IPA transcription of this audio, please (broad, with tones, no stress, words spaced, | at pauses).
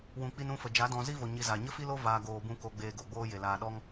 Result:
wũ˨k͡pi˧n ũ˧fə˨ d͡ʒa˨˦dɔ̃˧ zi˦vo˨ ɲi˧za˨ ɲə˦fi˦lo˦ vaː˧ ɡoː˧bũ˦ ko˧ɡ͡beː˧ɡo˨ ɡ͡boː˦je˨laː˧ ɗɔ˦ŋ